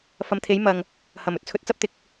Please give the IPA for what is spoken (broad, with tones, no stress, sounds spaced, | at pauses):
f ɐ˨˧ m t̪ʰ e˨˥ j m ɐ˨ ŋ | h ɐ˨˩ m ɵ˧ t̚ t͡sʰ ɵ˨˥ t̚ t͡s ɐ˥ p̚ t̪ ɪ˨ k̚